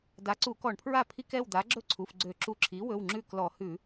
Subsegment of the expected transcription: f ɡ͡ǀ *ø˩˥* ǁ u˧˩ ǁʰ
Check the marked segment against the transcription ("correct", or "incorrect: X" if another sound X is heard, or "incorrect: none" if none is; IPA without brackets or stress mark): incorrect: ø˧˩˧